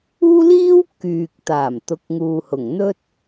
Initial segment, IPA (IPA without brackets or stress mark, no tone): uː